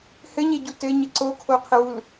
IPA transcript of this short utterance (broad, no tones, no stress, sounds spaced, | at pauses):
h ɘ ɲ e ɟ u t ɘ ɲ ɘ ǀ o kʰ o qʰ ɘ w u l